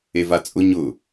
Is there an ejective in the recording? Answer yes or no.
yes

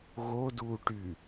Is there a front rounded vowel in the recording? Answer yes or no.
yes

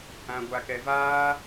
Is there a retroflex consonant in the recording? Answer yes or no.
no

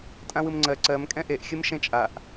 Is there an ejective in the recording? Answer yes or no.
yes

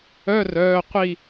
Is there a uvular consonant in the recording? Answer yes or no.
yes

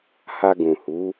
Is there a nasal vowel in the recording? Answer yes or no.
yes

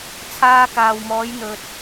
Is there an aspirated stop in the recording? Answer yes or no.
yes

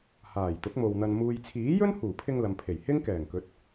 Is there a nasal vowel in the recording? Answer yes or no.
no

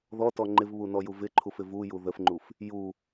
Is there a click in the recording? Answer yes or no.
yes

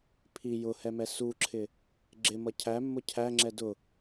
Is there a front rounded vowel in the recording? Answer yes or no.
no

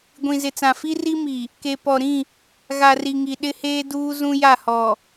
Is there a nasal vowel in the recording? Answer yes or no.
yes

